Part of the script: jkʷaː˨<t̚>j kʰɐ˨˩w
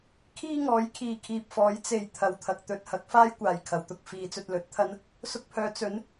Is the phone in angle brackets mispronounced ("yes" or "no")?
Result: yes